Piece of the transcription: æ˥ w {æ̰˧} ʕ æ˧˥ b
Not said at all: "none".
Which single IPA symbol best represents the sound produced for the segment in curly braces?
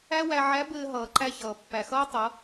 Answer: æ˧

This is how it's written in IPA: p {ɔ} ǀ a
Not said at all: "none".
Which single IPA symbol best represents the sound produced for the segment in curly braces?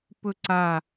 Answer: ɵ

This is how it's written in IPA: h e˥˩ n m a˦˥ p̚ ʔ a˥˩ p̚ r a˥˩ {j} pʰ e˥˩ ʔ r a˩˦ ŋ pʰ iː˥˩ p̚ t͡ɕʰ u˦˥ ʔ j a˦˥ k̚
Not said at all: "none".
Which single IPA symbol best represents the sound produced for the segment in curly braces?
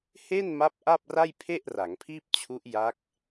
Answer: j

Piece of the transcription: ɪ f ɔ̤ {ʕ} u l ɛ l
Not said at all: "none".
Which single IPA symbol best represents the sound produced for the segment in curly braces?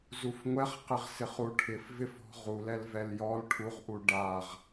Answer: ʁ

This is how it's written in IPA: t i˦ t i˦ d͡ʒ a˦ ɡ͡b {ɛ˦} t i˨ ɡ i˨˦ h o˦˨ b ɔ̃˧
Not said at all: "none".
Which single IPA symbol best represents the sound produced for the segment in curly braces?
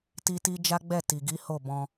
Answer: ɛ˦˨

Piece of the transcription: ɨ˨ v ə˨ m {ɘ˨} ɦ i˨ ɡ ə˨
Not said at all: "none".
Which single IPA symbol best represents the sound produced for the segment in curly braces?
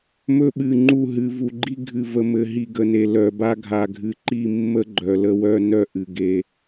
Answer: ɘ˨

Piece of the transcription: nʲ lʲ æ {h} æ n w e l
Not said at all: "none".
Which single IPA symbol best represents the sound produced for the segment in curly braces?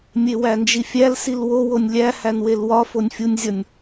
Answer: h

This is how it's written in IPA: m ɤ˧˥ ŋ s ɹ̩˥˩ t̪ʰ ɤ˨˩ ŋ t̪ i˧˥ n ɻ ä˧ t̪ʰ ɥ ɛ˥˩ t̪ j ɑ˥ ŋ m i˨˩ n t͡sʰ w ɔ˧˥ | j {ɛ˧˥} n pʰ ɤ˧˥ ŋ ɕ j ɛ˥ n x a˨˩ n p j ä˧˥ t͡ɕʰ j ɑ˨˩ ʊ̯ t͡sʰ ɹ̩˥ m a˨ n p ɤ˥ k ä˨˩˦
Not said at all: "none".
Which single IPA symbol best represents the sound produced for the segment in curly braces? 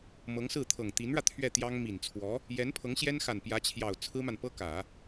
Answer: ɛ˧˥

